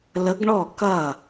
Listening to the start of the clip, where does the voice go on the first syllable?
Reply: rising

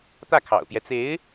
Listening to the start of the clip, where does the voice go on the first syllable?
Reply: falling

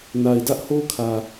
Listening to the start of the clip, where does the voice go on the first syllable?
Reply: low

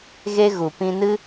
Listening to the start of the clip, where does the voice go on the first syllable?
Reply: high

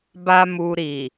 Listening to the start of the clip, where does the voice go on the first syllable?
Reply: high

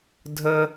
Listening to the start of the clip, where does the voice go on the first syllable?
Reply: high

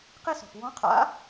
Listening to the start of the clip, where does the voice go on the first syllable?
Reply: high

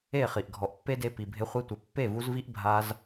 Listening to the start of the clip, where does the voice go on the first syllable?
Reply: falling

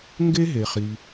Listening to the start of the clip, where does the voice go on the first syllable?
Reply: high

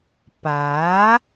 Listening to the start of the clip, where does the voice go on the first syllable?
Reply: rising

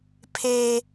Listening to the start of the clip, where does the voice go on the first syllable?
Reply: high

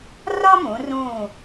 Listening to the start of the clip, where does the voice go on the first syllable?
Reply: high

